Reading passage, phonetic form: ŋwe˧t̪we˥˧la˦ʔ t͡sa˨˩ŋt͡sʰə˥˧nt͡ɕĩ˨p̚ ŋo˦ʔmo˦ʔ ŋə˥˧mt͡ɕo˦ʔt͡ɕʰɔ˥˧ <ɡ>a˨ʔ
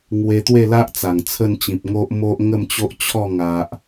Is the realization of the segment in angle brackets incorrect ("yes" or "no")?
yes